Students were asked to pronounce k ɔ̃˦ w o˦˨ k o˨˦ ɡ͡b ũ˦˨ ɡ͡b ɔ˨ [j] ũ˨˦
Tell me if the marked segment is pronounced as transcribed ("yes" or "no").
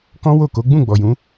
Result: yes